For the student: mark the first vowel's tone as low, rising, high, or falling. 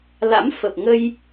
rising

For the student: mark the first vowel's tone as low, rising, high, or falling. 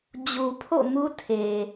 low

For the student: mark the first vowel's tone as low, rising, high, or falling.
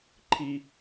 low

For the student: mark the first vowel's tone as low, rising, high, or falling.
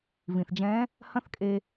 low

